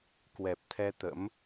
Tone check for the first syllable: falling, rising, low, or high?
low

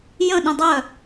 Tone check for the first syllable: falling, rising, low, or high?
falling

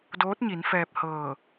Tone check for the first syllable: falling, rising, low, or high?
rising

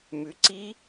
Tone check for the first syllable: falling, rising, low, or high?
rising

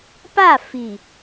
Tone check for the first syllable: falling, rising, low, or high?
falling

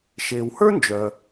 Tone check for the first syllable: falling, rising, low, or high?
low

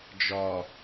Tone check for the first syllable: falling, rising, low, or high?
low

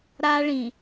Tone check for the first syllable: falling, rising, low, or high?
high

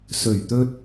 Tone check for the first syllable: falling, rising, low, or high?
low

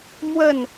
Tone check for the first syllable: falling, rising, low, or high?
falling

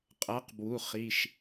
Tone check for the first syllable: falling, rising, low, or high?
rising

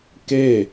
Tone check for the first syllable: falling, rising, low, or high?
falling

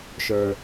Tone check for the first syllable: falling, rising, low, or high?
low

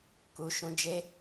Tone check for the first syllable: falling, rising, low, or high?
low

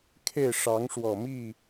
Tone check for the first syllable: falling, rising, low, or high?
falling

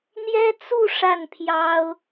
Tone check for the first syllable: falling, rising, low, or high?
high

